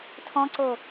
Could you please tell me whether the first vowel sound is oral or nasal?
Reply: nasal